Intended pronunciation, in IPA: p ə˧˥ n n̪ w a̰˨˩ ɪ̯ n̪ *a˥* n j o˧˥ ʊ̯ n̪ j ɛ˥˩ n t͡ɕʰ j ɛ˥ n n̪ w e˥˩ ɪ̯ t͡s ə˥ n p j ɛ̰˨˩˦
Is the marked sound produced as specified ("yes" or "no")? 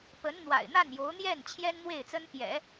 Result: no